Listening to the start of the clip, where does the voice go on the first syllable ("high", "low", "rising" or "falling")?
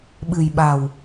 low